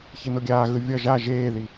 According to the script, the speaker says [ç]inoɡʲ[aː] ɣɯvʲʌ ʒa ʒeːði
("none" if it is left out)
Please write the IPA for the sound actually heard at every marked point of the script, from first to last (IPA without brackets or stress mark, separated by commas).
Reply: ç, aː